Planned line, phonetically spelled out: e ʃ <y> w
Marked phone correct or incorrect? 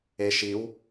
incorrect